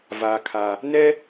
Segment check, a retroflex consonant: absent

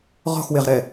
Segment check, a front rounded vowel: absent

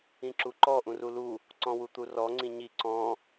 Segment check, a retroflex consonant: absent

